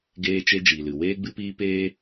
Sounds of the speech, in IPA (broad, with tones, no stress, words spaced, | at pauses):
ɡeː˧t͡ʃe˧ d͡ʒiː˨lɨ˨ weː˦ɡ͡bɨ˦piː˦ peː˦